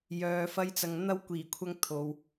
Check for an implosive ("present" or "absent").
absent